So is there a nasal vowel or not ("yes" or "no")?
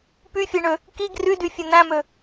yes